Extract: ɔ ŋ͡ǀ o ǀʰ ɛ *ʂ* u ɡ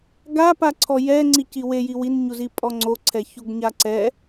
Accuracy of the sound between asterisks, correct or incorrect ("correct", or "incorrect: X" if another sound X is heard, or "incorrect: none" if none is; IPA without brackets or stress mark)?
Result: incorrect: ç